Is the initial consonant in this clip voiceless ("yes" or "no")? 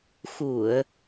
yes